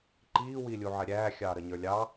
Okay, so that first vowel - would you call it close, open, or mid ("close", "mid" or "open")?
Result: close